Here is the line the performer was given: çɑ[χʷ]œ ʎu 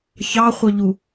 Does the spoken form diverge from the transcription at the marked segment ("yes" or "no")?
no